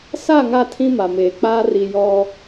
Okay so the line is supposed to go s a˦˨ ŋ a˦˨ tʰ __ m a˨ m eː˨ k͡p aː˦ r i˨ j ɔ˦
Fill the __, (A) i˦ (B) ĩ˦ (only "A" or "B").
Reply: B